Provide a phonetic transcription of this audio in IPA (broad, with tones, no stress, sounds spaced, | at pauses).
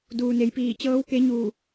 d uː˩ n e˩ j p iː˧˩ t͡ɕ ɤː˧˥ w k e˧˥ ɲ uː˧˩